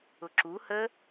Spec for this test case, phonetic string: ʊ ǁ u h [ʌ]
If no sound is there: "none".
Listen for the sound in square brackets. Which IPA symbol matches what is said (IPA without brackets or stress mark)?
ə